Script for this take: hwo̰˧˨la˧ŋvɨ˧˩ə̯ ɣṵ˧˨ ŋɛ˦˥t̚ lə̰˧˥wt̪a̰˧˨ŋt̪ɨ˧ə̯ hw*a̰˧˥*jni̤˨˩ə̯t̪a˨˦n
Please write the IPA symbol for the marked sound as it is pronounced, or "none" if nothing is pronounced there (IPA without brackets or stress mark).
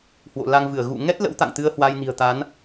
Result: a˧